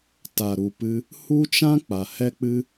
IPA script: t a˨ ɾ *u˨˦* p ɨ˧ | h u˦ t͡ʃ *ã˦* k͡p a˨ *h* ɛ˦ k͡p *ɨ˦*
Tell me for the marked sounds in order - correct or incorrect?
incorrect, correct, correct, correct

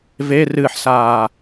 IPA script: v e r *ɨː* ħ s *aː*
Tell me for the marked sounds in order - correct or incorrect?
correct, correct

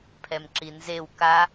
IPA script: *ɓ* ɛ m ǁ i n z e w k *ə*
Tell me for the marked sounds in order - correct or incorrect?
incorrect, incorrect

